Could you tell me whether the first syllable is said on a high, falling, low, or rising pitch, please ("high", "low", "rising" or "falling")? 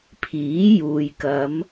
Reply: rising